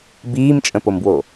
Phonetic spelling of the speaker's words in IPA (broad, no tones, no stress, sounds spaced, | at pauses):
b iː m t͡ʃʼ ə̃ p o m b w o